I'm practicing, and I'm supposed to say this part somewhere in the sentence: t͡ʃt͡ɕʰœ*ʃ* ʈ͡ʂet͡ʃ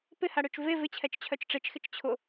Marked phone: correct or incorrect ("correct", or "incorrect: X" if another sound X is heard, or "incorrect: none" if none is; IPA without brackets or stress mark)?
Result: incorrect: t͡ʃ